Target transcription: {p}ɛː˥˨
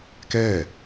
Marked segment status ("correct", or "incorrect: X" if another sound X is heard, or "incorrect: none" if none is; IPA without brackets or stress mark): incorrect: k